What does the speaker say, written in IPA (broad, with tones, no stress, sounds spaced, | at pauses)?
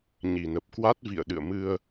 ɲ i˨˩ n ə˨˩ p̚ k w a˦˥ t̚ v ḭ˧˨ ə̯ ɗ ɨ̰˧˨ ə̯ m ɨ˧ ə̯